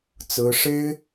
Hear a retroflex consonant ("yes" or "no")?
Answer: yes